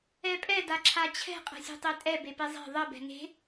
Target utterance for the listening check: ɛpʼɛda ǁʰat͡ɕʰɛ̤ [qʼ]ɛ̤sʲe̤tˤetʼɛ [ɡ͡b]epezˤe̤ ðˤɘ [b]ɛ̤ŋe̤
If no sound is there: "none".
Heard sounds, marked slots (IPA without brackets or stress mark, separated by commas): qʼ, b, b